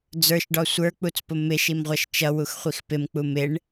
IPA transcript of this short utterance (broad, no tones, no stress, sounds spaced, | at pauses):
d͡z ə˞ ʃ ɖ ɔ sʷ ə˞ k͡p u t͡s p ʊ m ɪ ʃ i m ʁʷ ʌ ʃ t͡ʃ ʌ w u x χʷ i x p ɪ m k͡p u m ɪ ɳ